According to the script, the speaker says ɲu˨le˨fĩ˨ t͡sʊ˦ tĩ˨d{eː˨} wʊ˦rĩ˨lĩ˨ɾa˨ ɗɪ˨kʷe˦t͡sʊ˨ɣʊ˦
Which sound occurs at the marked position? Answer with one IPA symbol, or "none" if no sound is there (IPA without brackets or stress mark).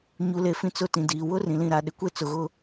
iː˨